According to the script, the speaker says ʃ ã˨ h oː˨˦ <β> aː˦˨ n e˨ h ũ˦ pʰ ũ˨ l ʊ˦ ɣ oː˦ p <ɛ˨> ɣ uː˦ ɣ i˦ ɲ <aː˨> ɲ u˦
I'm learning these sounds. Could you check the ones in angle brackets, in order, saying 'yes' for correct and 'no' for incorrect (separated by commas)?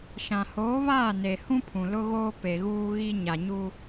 yes, no, no